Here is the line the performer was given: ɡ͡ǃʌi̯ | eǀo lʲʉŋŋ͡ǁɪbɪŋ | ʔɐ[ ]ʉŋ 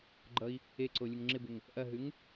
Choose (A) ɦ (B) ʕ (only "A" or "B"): A